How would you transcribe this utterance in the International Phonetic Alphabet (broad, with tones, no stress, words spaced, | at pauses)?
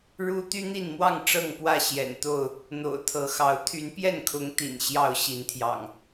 ɻu˦ t̪y˦n̪i˥˨nmwɑ˥˨ŋ ʈ͡ʂɤ˥˨ŋpwä˥˨ ɕjɛ̰˨˩nt̪o˥˨ʊ̯ | n̪o̰˨˩ʊ̯t̪ʰɤ˨˦xɑ˨˦ʊ̯ t̪ʰy˨˦npjɛ˥˨nkʰʊ˨˦ŋ t̪ḭ˨˩n ɕjɑ˥˨ʊ̯ ɕi˨˦nt̪ʰjɑ̰˨˩ŋ